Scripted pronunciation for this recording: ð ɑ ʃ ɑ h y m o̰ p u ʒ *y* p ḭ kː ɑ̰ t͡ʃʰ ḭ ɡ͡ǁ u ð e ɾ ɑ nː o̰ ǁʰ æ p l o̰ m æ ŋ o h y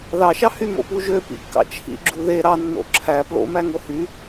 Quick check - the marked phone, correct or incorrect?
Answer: incorrect